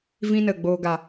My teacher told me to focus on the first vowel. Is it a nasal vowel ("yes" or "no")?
yes